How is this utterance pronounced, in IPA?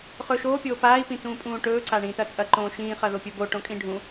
χɵːʃoː pʲoːpaːi̯ pĩtũːpʼũːʈɵː ǀaɳĩːtɐt͡sʼɐ ǃõːʃĩː χɐðopʲɵbo ʈõkʼĩɖʱũ

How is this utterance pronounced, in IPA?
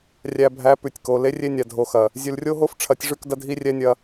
rʲæ˨bʱæ˨˦ pʉ˨tʲko˨ le˦rʲe˦nʲa˨ dʱo˨xɐ˨ | zʲʉ˨lrʲo˦ɦo˦f ʈ͡ʂʰɐ˨˦tʲʐʉ˦˨kdɐ˦ dʱi˦rʲɛ˦nʲɐ˦

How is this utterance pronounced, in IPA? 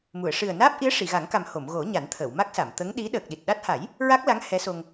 mu˨˩˨ə̯ ʂɨ˨˩ə̯naː˦˥p̚ʔi˧˥ə̯ ʂi˨˩˨ɣa˨˩˦ŋka˨˩m ho˨˩˨mɣo˨˩˦ ɲa˨˩˦nt̪ʰəː˨˩˨wma˦˥k̚sa˨˩˨m t̪ə˧˥ŋɗi˧˥ ɗəː˨˩k̚ɗi˨˩t̚ɗa˦˥t̚ ha˨˩˦j | ɹa˦˥k̚la˧˥ŋ hɛ˧˥so˧ŋ

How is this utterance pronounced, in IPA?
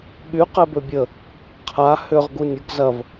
ɠy qɛbøbʲə | qʰa hʏʁ ɡunʲʊɡ zɐv

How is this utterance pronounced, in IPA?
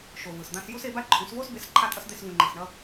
ʃo˨vɯ˨sd̪ã˧sju˦s e˧ba˦ǃʰũ˨˦svo˦s be˨˦s ǃʰa˦tʼʌ˦s d̪e˦svũ˧ ŋ͡ǃi˨sɳʌ˧

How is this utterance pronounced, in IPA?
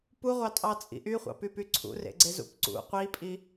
puʁʷɑtʼɑt͡sʼḭ ʔyχʷɑ̰pypy ǀʰṵrḛɡ͡ǀezṵp ǀṵ qʷipʼi

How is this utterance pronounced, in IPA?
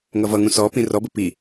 ŋʌvʌŋũ sɔ pĩrɔbə pi

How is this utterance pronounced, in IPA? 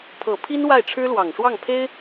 pʰɤ˨˩pʰi˥n wa˥˩ɪ̯ʈ͡ʂʰɻ̩˥lwɑ˨˩ŋʂwɑ˥˩ŋ pʰe˥ɪ̯

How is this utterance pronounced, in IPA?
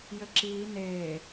jɘǁiː neː

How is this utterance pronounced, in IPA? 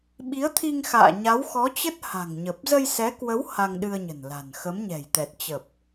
ɓi˨˦ə̯t̪ʰi˧ŋ xa̰ː˧˨ɲa˨˦wxɔ˨˦t͡ɕə˦˥t̚ ha̤˨˩ŋɲə˨˩p̚ zə˧jsɛ˨˦kwə˨˦w ha˧ŋɗɨ˧ə̯ɲə̤˨˩n la̤˨˩n xə˨˦mɲɛ̤˨˩jt̪ɛ˨˩t̚ t͡ɕə˨˩p̚

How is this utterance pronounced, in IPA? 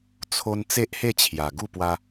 t͡sʰo˧n t͡se˦ʔhe˥˧t͡ɕʰja˨˩ ɡu˥˧pwa˧

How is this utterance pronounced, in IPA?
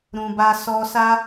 ɾũ˨ba˧ sɔ˧sa˦

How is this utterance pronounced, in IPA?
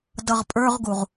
dʌʁpʼə˞ʁɡuʁ

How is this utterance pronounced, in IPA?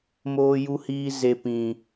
moː˦ju˦hiː˦ ze˦ pĩ˦

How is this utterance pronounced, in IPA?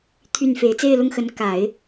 t̪ʰy˥˩nfe˧˥ɪ̯ t͡se˥˧ɪ̯lʊ˥˩ŋxə˧˥n ka˨˩˦ɪ̯

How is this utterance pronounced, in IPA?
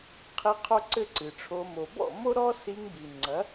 qʰi˧ qʰo˦ǀɘ˦ǀɨ˨ʈ͡ʂʰo˧ mo˨bɔ̰˦˨ mo˦ɾɔ˦si˧ŋbi˨ ŋ͡ǀɐ˨˦

